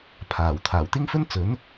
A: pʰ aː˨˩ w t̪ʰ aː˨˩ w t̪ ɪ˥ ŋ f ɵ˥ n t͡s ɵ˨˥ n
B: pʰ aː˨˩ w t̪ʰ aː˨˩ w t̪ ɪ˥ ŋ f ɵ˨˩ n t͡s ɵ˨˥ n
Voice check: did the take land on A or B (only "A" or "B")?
A